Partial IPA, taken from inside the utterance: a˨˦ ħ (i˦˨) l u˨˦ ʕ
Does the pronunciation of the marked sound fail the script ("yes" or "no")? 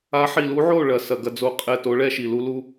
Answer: yes